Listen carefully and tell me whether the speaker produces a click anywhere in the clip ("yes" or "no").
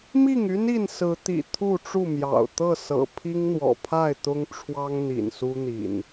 no